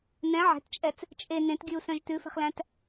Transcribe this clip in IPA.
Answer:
nɛ̃ ʕɛ̤tt͡ʃʼɛt͡s | t͡ʃʼe nẽtɡʲʉu̯sœ̃ʒ tʉfɛ̤χlæ̃t

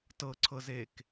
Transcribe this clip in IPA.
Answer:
tɤǀʰɤzek

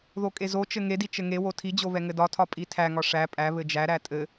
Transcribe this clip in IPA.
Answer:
ðokʼezot͡ʃɘ ŋedi t͡ʃɘŋewo tʰid͡ʑo βɛŋɘdɒtʰɒ pʼitʰæŋɒ ʂæ pʼæ βɘd͡ʒæɾæ tʼɘ

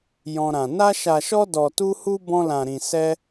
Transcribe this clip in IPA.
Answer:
jɔ̃˦ɾã˧ na˦ʃa˧ʃɔ˦ dɔ˧tu˦hu˦ bɔ̃˦lã˧ɾĩ˧ sɛ˦

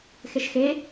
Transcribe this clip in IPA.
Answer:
xeʃxe

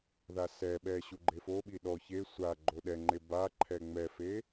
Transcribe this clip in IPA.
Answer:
ðasɛɓɛ ɕuɡ͡ǃefoɓi ɗɔ çe sʷa ɡ͡ǃoɗɛŋ͡ǃe baǃʰɛ ŋ͡mɛfe

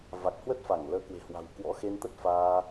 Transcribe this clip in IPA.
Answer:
va˨˩k̚ hwə˦˥t̚fa˧˩ŋləː˨˦ kwe̤˨˩hwa̤˨˩w kwɔ̰˧˥xe˧n t̪ə˦˥t̚faː˧

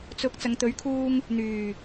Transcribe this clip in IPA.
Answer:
t͡sʊ˨˥k̚ t͡sɐ˨ŋt̪ɵ˨˥ɥkʰuː˧ŋ | n̪yː˨˩

